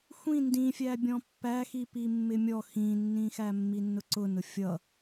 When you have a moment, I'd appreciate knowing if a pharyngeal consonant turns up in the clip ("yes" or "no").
no